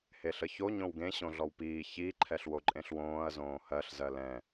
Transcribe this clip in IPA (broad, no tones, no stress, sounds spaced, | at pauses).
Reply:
h e ɬ ə ç o ɲ õ w ɡ ẽ ɕ õ ɮ ɔ w p iː ç i ǃʰ ɛ ɬ w o ǃʼ ẽ ɬ w õː ɐ̯ z õː h ɜ ɬ z ɜ l ɛ̃